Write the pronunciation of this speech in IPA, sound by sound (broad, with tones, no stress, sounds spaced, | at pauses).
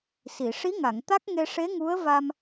s i˨˩˨ ʂ i˧˥ ŋ a˨˩˨ ŋ t̪ a˦˥ k̚ ŋ e˧ ʂ e˧˥ ŋ u˧˥ ə̯ v a˧ m